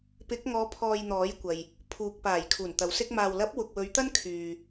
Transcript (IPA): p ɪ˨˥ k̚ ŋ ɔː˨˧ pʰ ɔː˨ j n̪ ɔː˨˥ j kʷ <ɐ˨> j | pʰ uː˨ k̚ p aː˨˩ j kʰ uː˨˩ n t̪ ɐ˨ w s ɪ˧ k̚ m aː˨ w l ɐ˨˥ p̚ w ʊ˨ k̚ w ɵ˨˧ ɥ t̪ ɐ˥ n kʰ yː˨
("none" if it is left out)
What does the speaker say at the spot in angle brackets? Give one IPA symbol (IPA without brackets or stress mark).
ɐ˨